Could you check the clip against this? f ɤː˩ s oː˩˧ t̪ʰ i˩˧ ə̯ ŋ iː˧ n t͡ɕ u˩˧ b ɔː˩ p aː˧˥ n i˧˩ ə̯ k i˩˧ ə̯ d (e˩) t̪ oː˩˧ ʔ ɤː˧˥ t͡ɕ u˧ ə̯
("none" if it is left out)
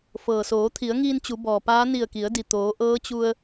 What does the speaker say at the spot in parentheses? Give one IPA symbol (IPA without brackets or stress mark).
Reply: i˩